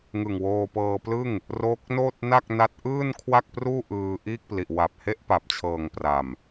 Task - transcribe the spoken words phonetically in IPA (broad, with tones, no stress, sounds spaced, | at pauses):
ŋ ɯ˨˩ ŋ w oː˧ p ɤː˧ p l ɯ˥˩ ŋ | r oː˦˥ k̚ n oː˥˩ t̚ n a˥˩ k̚ n a˦˥ t̚ ʔ ɯː˥˩ n kʰ w a˥˩ k̚ p r uː˥˩ ʔ ɯː˧ ʔ iː˥˩ k̚ p l i˨˩ ʔ w a˨˩ p̚ h e˥˩ ʔ p a˨˩ p̚ t͡ɕʰ ɤː˨˩ ŋ p r a˨˩ m